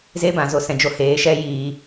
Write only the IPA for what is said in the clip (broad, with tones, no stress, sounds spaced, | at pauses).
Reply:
z e˦ b ã˨ z o˨ s ɛ̃˨ d͡ʒ o˧ h eː˨˦ ʃ ɛ˦ j iː˧